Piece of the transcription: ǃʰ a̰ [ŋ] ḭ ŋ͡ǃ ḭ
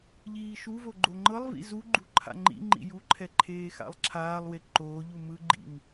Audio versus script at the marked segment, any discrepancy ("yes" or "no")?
yes